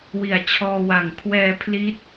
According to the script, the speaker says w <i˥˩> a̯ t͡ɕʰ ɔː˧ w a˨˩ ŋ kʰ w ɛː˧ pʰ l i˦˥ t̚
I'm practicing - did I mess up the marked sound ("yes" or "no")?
yes